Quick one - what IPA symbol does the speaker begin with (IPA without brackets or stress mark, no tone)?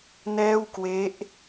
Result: n